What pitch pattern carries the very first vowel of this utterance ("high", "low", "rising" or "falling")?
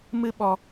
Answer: high